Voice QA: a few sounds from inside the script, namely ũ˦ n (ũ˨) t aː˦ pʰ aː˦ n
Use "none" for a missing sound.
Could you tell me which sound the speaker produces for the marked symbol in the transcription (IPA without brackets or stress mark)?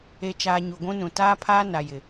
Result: ũ˨